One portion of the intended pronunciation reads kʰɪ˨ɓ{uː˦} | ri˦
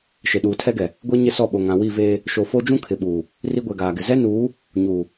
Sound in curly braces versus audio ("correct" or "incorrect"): incorrect